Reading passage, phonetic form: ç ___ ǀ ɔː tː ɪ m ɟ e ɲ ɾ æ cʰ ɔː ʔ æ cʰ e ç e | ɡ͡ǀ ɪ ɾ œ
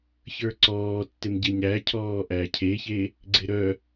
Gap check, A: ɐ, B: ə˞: B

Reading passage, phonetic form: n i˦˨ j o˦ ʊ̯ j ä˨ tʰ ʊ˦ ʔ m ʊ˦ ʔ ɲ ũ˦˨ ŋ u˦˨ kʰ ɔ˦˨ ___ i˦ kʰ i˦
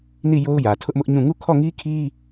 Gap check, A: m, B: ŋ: B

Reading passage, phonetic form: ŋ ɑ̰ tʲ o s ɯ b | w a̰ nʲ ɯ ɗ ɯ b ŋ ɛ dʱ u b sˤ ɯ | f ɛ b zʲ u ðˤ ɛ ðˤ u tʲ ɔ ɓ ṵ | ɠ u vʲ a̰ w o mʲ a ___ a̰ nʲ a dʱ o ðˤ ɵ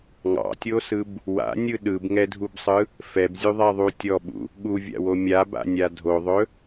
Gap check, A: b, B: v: A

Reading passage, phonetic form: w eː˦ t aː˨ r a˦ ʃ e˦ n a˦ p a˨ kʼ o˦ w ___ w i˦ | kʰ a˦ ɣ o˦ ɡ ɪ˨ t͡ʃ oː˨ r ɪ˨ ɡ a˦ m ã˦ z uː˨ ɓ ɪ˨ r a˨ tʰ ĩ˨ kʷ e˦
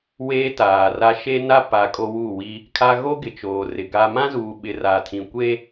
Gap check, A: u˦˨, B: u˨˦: A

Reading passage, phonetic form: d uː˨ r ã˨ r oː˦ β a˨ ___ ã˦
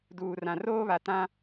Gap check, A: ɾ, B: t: B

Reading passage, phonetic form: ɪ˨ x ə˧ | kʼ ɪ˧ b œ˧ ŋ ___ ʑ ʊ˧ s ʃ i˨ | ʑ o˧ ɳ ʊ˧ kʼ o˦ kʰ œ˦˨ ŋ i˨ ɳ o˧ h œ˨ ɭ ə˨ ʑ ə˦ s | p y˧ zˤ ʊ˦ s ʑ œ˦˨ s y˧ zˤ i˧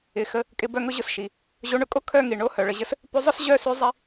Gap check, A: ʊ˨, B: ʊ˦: B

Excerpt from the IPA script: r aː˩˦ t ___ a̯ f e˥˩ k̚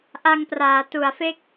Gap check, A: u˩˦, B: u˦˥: A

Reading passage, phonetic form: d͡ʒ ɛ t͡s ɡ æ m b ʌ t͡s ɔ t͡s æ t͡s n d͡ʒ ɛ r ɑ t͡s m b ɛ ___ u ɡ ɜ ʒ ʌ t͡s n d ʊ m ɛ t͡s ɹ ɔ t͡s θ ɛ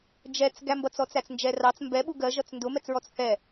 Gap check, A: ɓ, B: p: A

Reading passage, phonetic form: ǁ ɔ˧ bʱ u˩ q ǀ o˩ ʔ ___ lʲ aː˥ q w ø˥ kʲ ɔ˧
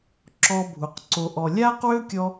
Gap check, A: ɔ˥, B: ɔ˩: B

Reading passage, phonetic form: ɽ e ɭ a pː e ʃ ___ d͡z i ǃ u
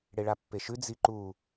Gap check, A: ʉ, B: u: A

